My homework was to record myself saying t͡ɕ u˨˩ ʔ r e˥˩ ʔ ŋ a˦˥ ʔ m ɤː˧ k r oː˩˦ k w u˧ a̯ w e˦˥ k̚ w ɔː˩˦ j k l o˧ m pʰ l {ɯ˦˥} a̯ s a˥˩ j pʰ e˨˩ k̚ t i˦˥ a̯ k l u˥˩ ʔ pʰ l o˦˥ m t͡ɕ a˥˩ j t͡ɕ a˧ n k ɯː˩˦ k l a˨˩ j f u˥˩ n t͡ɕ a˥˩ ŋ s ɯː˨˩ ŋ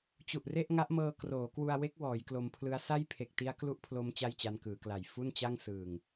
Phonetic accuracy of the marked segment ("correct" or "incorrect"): correct